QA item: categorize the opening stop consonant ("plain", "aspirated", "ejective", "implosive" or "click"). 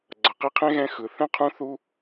click